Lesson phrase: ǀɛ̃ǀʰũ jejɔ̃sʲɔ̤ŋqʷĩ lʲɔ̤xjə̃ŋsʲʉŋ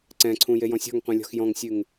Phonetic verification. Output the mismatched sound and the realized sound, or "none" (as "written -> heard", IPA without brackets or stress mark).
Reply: ə̃ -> ɔ̃